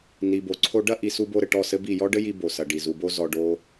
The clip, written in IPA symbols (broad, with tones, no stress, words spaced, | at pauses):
ni˨bo˨ǀʰo˧ ɖɐ˦ ʔi˨su˧ bo˧ɾɘ˨ ʈɔ˦˨sɘ˦bi˦˨ jɔ˦ɖɘ˦ji˧ bo˨sɐ˨ɖi˨ zu˨bo˧ zɔ˧ɖo˦